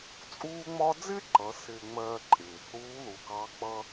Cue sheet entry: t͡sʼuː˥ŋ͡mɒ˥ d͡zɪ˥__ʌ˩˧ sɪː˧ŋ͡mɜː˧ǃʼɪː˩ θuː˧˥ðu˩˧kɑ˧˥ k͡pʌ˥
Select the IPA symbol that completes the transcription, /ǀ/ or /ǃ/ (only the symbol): ǃ